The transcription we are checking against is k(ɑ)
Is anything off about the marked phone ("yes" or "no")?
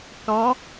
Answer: no